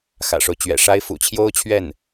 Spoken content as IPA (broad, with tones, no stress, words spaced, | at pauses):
xä̰˨˩ʂo˦ʊ̯t͡ɕɥɛ̰˨˩ʂa˥ɪ̯ fṵ˨˩t͡ɕʰjo˥ʊ̯t͡ɕʰɥɛ˥˩n